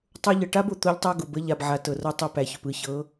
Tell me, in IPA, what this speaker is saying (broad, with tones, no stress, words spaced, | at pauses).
tˤo˦ ʎɤ˨ʈa˦bo˨ t̪o˦ʎtˤɤ˦ ɡʊ˨bə˦ ʎa˨bʕa˨tɤ˨rɤ˦ tˤɤ˦pæ˨çʊ˨pɯ˦ çɤ˨˦